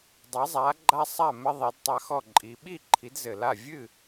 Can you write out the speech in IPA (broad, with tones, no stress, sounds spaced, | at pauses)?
dˤ ɐ˨˦ zˤ a˨˦ ɡ͡ǃ a˦ sˤ a˥˨ m ɘ˦ ðˤ i˨˦ d tˤ a˦ x ɔ˥˨ ǃʼ i˨˦ ɓ i˥˨ ǃʰ i˨˦ d z ɘ˨˩ l a˥˨ vʲ ɨ˥˨